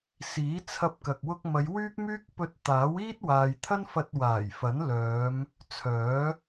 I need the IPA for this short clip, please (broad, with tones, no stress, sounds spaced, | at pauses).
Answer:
s iː˨˥ t͡sʰ ɐ˧ p̚ k ɐ˨ k̚ w ʊ˧ k̚ m ɐ˨˧ j w yː˥ k̚ m yː˥ k̚ p ɵ˧ t̚ t̪ aː˨˥ w iː˥ t̚ w aː˨ j t̪ʰ ɐ˥ n f ɐ˧ t̚ w aː˨˩ j f ɐ˨˥ n l œː˨˧ m | t͡sʰ œː˨˥